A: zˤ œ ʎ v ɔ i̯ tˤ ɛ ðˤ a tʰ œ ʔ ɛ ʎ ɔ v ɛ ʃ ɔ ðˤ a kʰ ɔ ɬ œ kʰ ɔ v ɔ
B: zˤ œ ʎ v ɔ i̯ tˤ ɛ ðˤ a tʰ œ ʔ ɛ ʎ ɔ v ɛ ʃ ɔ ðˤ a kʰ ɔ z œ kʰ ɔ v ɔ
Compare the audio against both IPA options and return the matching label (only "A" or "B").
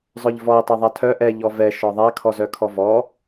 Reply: B